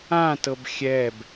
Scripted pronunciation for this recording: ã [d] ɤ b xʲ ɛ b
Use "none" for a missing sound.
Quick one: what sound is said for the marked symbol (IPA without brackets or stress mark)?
t